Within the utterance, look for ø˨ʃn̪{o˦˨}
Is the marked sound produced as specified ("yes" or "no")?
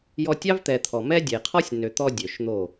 yes